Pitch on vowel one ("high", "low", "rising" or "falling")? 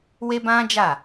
high